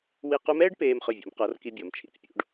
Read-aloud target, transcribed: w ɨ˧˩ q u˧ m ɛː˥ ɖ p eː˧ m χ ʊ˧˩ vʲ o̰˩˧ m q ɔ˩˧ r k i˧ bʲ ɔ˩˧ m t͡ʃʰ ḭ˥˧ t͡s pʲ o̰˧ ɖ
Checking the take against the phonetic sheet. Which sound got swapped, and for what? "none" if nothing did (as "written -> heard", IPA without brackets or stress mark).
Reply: ɨ˧˩ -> i˧˩